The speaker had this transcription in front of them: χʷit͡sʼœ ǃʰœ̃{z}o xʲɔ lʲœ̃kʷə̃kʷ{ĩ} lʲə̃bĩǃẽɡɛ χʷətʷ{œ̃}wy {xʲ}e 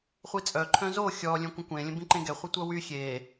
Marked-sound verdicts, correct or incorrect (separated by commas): correct, incorrect, incorrect, correct